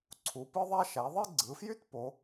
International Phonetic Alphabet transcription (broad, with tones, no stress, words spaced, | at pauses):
ǀʰu˩˧pɯ˥ðˤæ˥ ʃæ˩˧ðˤi˥ ɡ͡ǀɯ˩˧fjy˥t po˩˧